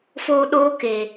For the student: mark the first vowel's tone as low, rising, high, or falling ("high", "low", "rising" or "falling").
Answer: high